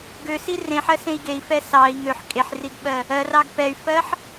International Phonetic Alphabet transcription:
ɡøsi rẽħɜsẽi̯ ɡei̯fɛ sɑi̯ ŋøħ kʼeħriɡɓɜ | ɜrɑɡ pɛy̯fɜħ

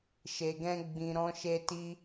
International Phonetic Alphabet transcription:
ʃe˨ɡɛ̃˧ɡ͡bĩ˨ ɾɔ̃˧ʃe˧ti˧

